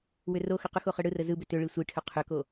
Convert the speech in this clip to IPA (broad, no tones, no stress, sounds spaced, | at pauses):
w ʏ r o x ʏ q ʏ x o χ ɯ ɽ ɯ r ə z ɯ b ʏ t ʏ ɭ i sʷ i ʈʰ ʏ qʰ ʏ k o